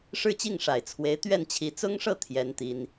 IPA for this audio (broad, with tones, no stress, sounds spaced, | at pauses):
ʂ ɻ̩˥˧ t͡ɕ i˥˩ ŋ ʂ a˨˩ ɪ̯ t͡sʰ w e˧˥ ɪ̯ t̪ ɥ ɛ˥˩ n t͡ɕʰ i˧˥ t͡s ʊ˥ ŋ ʂ ɤ˥˩ t̪ʰ j ɛ˥ n t̪ i˥ n